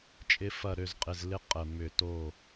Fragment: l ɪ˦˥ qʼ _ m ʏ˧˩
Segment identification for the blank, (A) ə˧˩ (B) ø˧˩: A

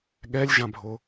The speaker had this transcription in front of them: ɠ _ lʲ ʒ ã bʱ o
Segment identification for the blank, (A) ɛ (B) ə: A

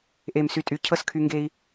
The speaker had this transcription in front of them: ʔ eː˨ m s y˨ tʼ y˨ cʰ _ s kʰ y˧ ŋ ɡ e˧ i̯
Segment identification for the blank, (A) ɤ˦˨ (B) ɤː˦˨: A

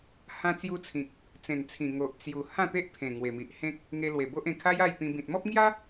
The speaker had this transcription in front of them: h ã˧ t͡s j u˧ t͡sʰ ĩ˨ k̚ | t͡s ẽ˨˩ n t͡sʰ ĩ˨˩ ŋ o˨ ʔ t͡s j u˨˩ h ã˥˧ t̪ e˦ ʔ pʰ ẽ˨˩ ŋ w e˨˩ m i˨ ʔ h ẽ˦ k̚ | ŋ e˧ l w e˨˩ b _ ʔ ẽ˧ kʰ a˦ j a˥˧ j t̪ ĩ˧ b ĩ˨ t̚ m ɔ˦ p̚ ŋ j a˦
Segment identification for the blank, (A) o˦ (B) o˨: A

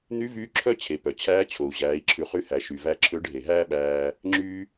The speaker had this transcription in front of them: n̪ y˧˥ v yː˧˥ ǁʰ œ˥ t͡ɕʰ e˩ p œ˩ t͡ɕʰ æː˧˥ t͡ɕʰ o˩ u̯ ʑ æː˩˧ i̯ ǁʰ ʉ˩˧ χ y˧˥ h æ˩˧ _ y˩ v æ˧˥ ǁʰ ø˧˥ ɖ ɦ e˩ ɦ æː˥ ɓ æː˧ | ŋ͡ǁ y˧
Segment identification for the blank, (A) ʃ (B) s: A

